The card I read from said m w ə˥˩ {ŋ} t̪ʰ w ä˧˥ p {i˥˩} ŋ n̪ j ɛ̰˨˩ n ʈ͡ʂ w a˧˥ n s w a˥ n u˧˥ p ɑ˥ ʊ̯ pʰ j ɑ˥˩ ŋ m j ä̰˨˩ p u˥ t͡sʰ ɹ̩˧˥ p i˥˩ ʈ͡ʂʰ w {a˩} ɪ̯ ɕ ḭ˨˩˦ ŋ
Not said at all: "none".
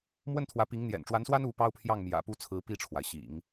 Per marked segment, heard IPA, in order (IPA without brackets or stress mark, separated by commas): n, i˧˥, a˩